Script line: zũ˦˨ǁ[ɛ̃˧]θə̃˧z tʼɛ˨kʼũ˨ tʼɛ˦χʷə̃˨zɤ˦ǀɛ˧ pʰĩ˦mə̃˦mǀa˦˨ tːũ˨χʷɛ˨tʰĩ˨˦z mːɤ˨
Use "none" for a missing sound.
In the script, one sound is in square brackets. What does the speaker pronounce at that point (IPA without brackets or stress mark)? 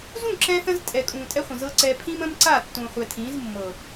ɛ̃˧